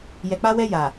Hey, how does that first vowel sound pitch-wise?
low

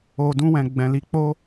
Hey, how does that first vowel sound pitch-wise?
low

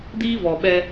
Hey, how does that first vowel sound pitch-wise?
high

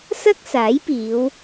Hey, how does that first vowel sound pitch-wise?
high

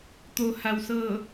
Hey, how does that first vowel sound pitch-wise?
low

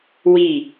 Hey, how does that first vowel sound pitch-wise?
falling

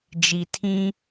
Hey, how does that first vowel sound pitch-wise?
low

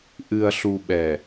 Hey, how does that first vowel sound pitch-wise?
low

